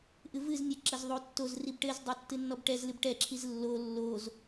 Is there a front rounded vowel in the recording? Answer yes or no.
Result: no